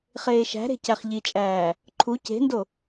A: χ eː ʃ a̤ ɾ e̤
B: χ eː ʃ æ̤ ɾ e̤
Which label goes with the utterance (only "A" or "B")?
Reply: B